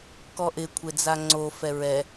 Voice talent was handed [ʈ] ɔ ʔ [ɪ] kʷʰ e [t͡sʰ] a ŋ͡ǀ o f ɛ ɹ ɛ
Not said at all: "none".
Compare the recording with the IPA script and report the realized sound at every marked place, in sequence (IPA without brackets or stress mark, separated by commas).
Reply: k, ɪ, d͡z